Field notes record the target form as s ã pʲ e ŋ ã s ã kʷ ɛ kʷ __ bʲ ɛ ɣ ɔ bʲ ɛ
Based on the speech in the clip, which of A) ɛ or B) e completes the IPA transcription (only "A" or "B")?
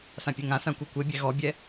B